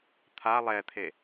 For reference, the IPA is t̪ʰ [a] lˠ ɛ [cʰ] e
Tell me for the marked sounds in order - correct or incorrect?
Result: correct, incorrect: t̪ʰ

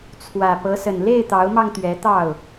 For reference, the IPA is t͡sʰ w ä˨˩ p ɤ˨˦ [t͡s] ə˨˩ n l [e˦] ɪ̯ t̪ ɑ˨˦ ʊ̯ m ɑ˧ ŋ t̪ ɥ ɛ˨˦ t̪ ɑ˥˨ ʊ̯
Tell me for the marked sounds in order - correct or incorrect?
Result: incorrect: s, incorrect: e˥˨

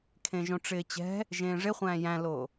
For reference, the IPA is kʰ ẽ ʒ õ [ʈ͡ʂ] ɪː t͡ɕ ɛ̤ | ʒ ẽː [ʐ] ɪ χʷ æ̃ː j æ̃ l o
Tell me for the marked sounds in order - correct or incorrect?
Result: correct, correct

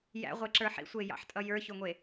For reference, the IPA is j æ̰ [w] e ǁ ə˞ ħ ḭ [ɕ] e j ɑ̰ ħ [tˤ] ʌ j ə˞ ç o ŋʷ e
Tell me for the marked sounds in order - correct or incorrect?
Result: incorrect: ʁʷ, incorrect: sʷ, incorrect: tʼ

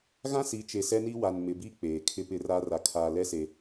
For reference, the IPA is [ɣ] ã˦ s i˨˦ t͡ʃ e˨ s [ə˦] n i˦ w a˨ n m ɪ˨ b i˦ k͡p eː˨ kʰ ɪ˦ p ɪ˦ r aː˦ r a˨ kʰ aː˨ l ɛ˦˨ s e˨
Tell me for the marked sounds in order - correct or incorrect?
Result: correct, incorrect: ɛ˦

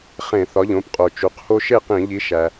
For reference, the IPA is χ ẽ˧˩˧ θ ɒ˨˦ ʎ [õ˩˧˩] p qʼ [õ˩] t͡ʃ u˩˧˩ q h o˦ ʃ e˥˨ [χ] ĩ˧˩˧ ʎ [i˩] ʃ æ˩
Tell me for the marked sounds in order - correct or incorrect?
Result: correct, incorrect: o˩, incorrect: q, incorrect: i˨˦

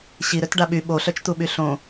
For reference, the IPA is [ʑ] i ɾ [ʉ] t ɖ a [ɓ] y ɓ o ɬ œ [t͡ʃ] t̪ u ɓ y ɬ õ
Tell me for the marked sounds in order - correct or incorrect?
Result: incorrect: ɕ, incorrect: ø, correct, correct

